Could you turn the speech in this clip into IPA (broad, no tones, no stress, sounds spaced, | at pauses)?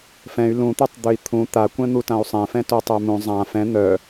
f ɛ̃ y̯ l ũ t̪ ø tˤ d̪ ø i̯ t̪ʰ ũ t̪ a kʷ ɛ̃ n̪ u t ã u̯ sˤ ɛ̃ f ɛ̃ t o tˤ ø m ũ zˤ ã f ɛ̃ n̪ œ